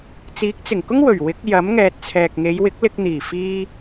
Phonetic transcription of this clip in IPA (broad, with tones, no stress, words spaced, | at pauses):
t͡siː˨˥k̚t͡sɪ˨˩ŋkʊ˥ŋ wɵ˨˩ɥwɪ˨˥k̚ jɐ˨˥m ŋɛː˨t̚t͡sʰɛː˨k̚ŋe˨˧jwɪ˨˥k̚ lɪ˧k̚n̪iː˨˩ fiː˧